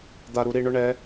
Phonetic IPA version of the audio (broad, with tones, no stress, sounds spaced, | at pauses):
d̪ a˨ ɾ u˨ ɾ i˦˨ ɳ ʊ˦ ɳ ɛ˨˦